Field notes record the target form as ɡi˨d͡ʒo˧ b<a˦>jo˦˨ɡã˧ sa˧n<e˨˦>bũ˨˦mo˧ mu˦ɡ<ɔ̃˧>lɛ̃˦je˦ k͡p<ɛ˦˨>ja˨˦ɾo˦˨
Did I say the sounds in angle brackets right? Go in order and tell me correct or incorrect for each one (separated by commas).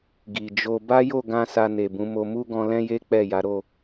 correct, incorrect, correct, correct